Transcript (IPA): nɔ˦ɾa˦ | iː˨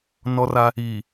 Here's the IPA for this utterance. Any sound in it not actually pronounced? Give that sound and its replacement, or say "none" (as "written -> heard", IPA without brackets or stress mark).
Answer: ɾ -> r